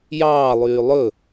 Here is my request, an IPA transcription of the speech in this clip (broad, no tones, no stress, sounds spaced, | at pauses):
j ɑː lˠ yː lˠ ɵ